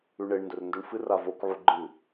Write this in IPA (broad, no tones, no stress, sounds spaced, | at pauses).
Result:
ʉ ɳ e ɳ n d ɵ r n d ɵ ɳ f ɨ r a v o k ʕ u ɡ͡ǃ ɨ